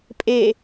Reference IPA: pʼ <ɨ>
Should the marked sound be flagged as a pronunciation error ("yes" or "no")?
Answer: yes